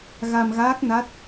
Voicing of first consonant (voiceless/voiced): voiced